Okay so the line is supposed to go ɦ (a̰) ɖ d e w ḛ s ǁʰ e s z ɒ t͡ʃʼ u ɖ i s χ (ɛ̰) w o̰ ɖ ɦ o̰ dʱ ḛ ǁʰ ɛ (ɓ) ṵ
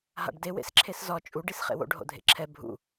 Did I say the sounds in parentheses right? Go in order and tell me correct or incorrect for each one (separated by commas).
correct, incorrect, incorrect